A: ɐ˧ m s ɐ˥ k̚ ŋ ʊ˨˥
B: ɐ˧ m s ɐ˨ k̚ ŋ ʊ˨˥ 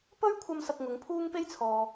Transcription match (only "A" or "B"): B